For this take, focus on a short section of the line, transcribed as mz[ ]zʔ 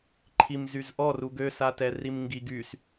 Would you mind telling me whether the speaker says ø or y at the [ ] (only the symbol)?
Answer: y